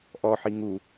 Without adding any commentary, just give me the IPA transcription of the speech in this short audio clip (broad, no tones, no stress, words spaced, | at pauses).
ʔɔħi ŋu